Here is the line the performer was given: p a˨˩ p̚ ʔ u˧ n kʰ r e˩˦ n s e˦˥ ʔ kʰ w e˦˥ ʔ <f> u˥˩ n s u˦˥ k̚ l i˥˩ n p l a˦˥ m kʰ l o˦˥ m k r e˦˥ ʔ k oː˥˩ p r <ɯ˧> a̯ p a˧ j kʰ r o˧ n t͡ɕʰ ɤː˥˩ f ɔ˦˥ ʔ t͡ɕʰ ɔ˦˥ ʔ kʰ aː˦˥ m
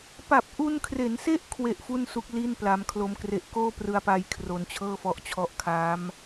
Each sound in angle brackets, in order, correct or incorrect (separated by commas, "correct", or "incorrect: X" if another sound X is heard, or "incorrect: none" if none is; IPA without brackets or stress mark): correct, correct